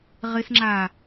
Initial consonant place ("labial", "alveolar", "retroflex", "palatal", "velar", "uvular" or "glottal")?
uvular